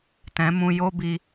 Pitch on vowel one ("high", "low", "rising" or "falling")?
rising